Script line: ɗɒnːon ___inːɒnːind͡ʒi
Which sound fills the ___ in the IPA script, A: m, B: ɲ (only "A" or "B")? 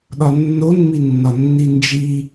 A